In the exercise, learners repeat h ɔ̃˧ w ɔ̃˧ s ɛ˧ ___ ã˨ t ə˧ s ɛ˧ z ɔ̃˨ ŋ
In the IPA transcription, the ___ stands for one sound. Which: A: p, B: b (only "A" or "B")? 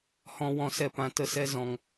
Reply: A